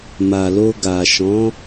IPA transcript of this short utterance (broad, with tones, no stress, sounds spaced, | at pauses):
m a˨ l o˧ ɡ a˨ ʃ ɔ̃˨˦